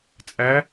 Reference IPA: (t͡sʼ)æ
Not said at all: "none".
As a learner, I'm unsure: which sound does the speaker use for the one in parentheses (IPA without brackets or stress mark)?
t͡sʼ